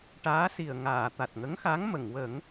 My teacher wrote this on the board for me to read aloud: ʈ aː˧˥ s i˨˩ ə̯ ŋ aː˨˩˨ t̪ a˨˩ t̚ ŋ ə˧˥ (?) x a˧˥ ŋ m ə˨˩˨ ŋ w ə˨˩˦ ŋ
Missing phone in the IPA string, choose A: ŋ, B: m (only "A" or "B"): A